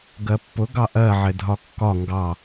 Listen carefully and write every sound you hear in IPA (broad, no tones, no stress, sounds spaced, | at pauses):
ɡ ɜ pː ʊ ɡ ɑ ʔ ɜ ʕ ɪ dʱ ɒ kː ɒ ŋ ɡ ɑ